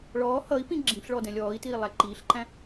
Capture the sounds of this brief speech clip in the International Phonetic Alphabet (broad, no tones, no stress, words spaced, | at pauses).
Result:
ɭɔː hʌi̯pĩ ɡ͡ǁĩɬɭɔd ɛ̃lʲɔːi̯tiː lˠæǃiːɬǃæ̃